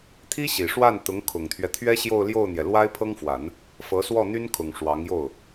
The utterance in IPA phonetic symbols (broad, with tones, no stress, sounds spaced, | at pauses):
t̪ʰ i˥ ɕ i˨˩ ʂ w a˥˩ n t̪ ʊ˧˥ ŋ kʰ ʊ˨˩ ŋ t̪ʰ ɥ ɛ˦ t̪ʰ ɥ ɛ˥ ɕ j o˥˧ ʊ̯ l j o˥˩ ʊ̯ n̪ j ɛ˩ l w a˥ ɪ̯ pʰ ɤ˥ ŋ f w a˨˩˦ n | f ɤ˧˥ s w ɔ˥˩ n̪ y˥ n kʰ ʊ˨˩ ŋ ʂ w ɑ˧˥ ŋ j o˥˩ ʊ̯